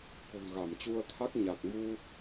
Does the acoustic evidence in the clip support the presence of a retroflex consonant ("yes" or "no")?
no